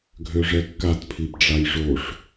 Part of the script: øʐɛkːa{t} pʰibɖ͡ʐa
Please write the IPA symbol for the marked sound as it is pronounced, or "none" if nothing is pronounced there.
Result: t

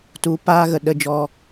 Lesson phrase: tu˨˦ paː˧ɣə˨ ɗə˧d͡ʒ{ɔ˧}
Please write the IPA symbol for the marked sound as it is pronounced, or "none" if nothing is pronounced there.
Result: ɔ˧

